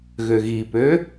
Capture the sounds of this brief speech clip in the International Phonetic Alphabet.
ɣøɣipø

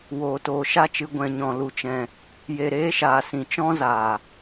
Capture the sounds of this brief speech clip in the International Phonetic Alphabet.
woː˨toː˨ʃa˦t͡ʃɨ˨˦ ɡʷɛ̃˨ɲɔ̃˨ lu˧t͡ʃɛ̃˧ | je˨ɾeː˦ʃaː˨sĩ˨ t͡ʃɔ̃˦zaː˨

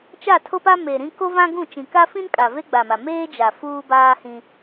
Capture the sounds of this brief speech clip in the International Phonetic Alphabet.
t͡ʃa˦˨tʰo˦pa˦ me˨ɾĩ˦ ko˦vã˦ɡũ˦˨ t͡ʃĩ˨ka˦fĩ˦nkʼa˨ ve˦ɡ͡ba˨ma˨ meː˦d͡ʒa˨ fuː˦baː˦hĩ˦

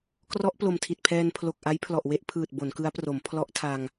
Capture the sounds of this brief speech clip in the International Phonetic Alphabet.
krɔ˦˥ʔplo˨˩m tʰi˨˩t̚pʰɛː˧npʰlo˨˩k̚ʔa˦˥j pʰlɔ˨˩ʔwe˥˩ʔpʰɯː˨˩t̚ bo˩˦nkɯ˦˥a̯pro˩˦m pʰlɔ˦˥ʔtʰa˧ŋ

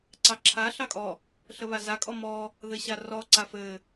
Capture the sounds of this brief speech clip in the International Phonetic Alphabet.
ǀɑǁʰa ɬɑkʼɔ | ɬəβaza kʼɔmɔ | ðɘɕarɔ ǀafɘ

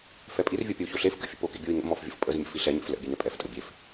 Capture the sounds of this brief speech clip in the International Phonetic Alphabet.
fɛpʼirvʲo pʲəu̯çoɬefkə̰ fʲə̰pokḛ bʲoi̯ŋə̰mɔf vʲə̰fpʼəzmʲə̰ fiɬɛɲḛf lə̰ bʲɛnɛpʼɛftʼə bʲef

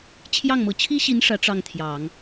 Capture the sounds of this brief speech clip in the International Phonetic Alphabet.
t͡ɕʰjɑ˥˩ŋmɤ˧˥ t͡ɕʰi˥ɕi˧˥n ʂä˧˥ ʈ͡ʂɑ˥˩ŋt̪ʰjɑ˨˩˦ŋ

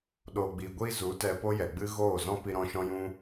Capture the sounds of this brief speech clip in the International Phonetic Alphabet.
ɗoː˨ɡ͡biː˨ɡʷiː˧ zu˨˦tɛ˧po˦ jɛ˨ɡ͡bɨ˦ ɣoː˦˨zɔ̃˦ pi˧ɾɔ̃˧ ʃɔ̃˦jũ˦

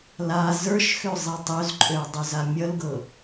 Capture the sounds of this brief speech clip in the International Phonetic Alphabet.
la zə˞ʃxø zˤitˤøzǃʼøɐ̯ dˤøzamʲʌlɡɤ

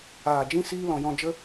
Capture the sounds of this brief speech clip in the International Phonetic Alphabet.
aː˨ d͡ʒĩ˦ siː˦ lɔ̃˨jɔ̃˧d͡ʒə˦

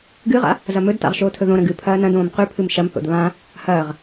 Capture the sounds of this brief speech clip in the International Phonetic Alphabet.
ɡɨʁa̰ | zɐmɵdta̰ʁ ʃoːtʰɵðõɾɐ̃ ɡɨ pʰɐːnɐ̃dõːm qʉpʰɨm ʃɐmθo̰d βã | hɐːʁ

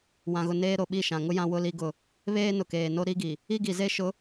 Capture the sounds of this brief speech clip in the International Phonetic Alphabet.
wã˨ɣʊ˨ neː˦ɾo˨ ɓi˦˨ʃã˨ŋʊ˦ jã˦ wʊ˦li˦ɡʊ˦˨ | βeː˦nʊ˨keː˨no˦ ɾi˦ɡi˨ | i˦ɡi˨ze˦ʃʊ˨˦

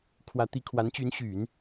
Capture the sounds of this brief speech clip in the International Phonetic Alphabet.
kʰwä˧˥t̪i˧˥ kʰwa˧˥nt͡ɕy˧˥nɕy˨˩˦n

